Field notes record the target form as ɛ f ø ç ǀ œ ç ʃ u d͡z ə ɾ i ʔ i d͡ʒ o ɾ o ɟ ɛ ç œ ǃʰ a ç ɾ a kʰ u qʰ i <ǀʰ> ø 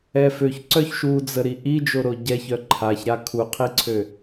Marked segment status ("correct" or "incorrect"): correct